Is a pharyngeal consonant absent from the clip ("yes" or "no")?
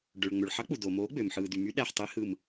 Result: no